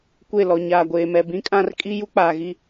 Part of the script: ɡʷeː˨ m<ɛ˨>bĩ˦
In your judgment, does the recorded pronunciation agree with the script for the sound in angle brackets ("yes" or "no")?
yes